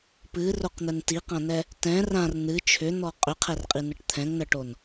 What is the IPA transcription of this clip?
p ɨ r o q n̪ ɛ n t i q ã n ɛ | t ɛ̃ r ã r n̪ ɨ t͡ʃʰ ʏ n̪ ɔ qʼ ʏ qʰ ɛ r qʼ i n ə ʈ t̪ʰ ɛ̃ ŋ n ə ʈ o n

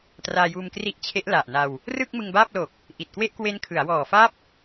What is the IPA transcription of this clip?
t r aː˧ j uː˧ m k r i˦˥ ʔ t͡ɕʰ e˦˥ ʔ l a˨˩ ʔ n a˧ w | r ɯ˥˩ k̚ m ɯ˧ ŋ b aː˥˩ p̚ l o˨˩ k̚ | ʔ i˨˩ t̚ k w e˥˩ ʔ k w e˦˥ n kʰ ɯ˩˦ a̯ w ɔː˨˩ f a˦˥ p̚

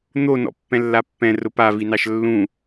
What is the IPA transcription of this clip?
n̪ o n ɔ̰ pː ɛ̃ lː a pː ɛ̃ r ʊ p a v i n ɑ ʃ lː ũ

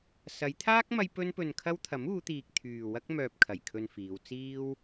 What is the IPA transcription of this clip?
s ɐ˨˧ j t̪ʰ aː˥ k̚ m ɐ˥ j p ɵ˥ n p ɵ˧ n kʰ ɐ˥ w t̪ʰ ɐ˨˥ m uː˨˧ t̪ iː˨ k̚ t̪ʰ yː˨ w ɐ˥ k̚ m œː˧ p̚ kʰ ɐ˨˩ j kʰ ɵ˧ n f iː˨˧ w t͡s iː˥ w

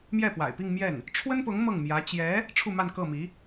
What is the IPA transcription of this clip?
m j ɛ˥˩ p w a̰˨˩ ɪ̯ p i˥˧ ŋ m j ɛ˥˩ n | ʈ͡ʂʰ w ə˥ n p ʊ˧˥ ŋ m ɤ˥˩ ŋ m j ä˧˥ t͡ɕ j ɛ˧˥ | ʈ͡ʂʰ u˥˧ m a˥˧ n k ɤ˥˩ m i˧˥

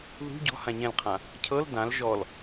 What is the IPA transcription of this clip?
ð ṳ ɟ ɔ̤ h ã ɲ ɛ̃ l qʰ ã | cʰ ɤ l d ã l ʒ ɔ l

